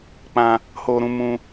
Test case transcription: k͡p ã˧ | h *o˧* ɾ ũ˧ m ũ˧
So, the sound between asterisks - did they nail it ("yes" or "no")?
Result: yes